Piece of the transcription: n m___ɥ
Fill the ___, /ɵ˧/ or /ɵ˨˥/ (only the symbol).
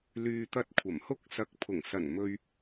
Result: ɵ˧